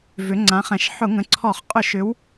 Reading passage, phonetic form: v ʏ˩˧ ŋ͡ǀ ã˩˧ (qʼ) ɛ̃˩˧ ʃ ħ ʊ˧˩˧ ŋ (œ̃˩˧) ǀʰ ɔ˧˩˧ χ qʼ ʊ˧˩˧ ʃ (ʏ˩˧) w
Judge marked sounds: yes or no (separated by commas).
no, no, yes